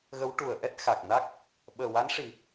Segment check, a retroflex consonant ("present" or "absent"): present